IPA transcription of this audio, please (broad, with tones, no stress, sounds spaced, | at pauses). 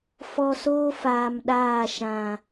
f ɔ˨ s oː˦ f aː˨ m ɗ aː˦˨ ʃ ã˨